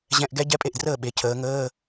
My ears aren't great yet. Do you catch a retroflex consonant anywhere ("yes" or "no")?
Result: no